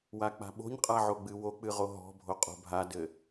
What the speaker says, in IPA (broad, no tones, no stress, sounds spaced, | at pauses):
w a k͡p a̤ ɓ o̤ ɲ qʼ a ʕ o ɡ͡b ɨ w o k͡p ɨ ʁ o ɦ ɔ̤ bʱ o qʼ o̤ bʱ a d ɘ